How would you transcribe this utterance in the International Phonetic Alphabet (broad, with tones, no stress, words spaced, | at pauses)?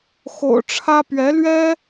xo̰˨˩ʊ̯ʈ͡ʂʰä˥ pɥɛ˧˥lɥɛ˥